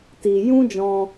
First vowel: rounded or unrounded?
unrounded